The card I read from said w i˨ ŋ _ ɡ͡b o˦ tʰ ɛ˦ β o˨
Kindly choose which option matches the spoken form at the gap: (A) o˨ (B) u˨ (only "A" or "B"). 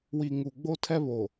B